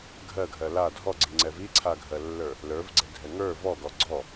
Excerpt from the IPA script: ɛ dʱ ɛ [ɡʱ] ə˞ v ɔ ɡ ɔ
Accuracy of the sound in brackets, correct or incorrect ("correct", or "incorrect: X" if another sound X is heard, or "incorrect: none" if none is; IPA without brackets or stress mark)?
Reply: incorrect: ŋ